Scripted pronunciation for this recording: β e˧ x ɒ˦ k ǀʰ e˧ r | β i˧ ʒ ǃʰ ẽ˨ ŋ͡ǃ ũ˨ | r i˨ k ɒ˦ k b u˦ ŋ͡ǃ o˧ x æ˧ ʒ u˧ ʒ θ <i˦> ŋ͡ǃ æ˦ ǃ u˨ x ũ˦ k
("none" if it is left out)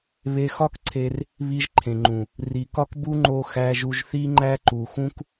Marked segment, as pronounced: i˦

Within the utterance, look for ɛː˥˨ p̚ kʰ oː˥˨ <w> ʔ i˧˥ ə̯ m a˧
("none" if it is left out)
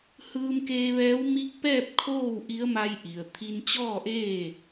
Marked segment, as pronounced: w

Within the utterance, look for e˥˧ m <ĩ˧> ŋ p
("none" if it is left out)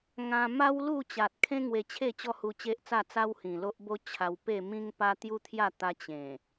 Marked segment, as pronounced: ĩ˦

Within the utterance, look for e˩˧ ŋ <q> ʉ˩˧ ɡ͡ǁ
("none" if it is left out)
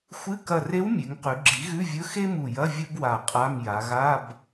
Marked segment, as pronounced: q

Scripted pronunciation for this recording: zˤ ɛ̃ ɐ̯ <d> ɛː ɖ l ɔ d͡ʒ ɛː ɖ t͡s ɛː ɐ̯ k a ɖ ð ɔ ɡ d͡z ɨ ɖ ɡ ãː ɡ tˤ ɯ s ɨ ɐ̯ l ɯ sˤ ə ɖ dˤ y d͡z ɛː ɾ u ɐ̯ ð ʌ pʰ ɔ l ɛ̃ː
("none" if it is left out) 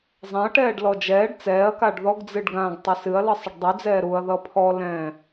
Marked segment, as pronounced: ʈ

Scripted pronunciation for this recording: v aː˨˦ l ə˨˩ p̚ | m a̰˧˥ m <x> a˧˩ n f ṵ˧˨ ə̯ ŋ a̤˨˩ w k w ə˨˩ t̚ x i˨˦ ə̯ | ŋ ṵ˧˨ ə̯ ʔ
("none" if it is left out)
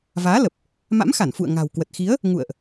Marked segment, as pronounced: x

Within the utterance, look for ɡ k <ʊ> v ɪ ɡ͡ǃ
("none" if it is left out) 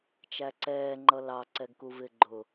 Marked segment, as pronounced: u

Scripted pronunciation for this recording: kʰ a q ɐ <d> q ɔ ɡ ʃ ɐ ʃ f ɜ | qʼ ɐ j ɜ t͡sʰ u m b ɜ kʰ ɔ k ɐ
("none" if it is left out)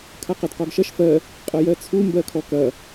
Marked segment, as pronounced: d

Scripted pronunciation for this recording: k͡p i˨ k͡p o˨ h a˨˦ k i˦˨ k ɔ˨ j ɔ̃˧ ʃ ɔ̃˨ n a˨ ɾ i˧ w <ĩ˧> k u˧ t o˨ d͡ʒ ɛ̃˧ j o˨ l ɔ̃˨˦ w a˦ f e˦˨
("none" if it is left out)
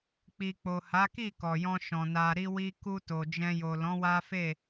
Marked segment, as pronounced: i˧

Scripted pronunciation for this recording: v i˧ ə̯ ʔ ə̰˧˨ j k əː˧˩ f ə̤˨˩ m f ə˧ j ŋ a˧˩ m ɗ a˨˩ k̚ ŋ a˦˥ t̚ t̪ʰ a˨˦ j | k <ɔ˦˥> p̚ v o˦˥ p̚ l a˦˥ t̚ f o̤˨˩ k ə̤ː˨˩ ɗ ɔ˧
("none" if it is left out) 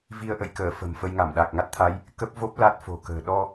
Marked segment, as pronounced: ə˦˥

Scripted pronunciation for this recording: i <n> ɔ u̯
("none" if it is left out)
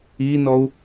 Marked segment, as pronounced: n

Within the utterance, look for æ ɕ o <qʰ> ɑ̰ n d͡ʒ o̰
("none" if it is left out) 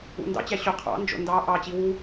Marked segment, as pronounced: qʰ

